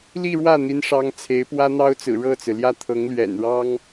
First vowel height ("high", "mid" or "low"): high